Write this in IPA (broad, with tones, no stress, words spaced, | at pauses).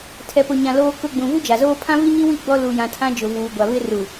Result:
tʰɛ˨pʊ˨ɲã˨ loː˨kʊ˨ ɡ͡bũ˨vu˦d͡ʒa˨zoː˦ pʰã˦vi˦ɲi˦wi˦˨ ɡ͡bɔ˦lu˨jã˨tʰã˦ d͡ʒʊ˨vuː˨ɡʷa˨ βɪ˦ru˨